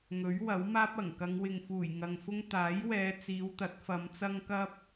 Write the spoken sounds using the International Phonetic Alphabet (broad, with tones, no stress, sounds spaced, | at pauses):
ŋ ɵ˨˥ ɥ w ɐ˨˥ w m aː˥ p̚ ɐ˨˩ ŋ k ɐ˨˧ ŋ w ɪ˨ ŋ f uː˨˩ j ŋ ɐ˨ ŋ f ʊ˥ ŋ t̪ aː˨˥ j w ɛː˨˧ t͡s iː˨˧ w t̪ ɐ˨˥ t̚ f ɐ˨˧ m t͡s ɐ˥ ŋ k ɐ˥ p̚